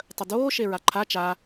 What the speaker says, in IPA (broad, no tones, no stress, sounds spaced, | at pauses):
tˤ ə d oː ʃ e ɹ a ǃʰ a t͡ʃ a